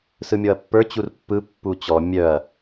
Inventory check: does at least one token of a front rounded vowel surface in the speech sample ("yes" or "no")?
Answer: yes